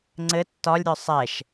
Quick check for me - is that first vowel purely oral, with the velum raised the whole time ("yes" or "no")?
yes